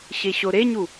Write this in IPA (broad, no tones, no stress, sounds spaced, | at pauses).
ɕ e ɕ o ɾ e ɲ u